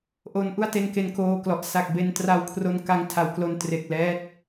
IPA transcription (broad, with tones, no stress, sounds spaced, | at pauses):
ʔ o˦˥ n ʔ u˥˩ a̯ t e˧ n k e˧ n k oː˧ k l ɔ˨˩ ʔ s a˨˩ k̚ b e˧ n t r a˧ w kʰ r o˧ n k a˦˥ ŋ tʰ a˩˦ w k l o˧ n t r e˨˩ k̚ l ɛː˦˥ t̚